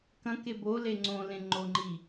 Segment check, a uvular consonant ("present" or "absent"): absent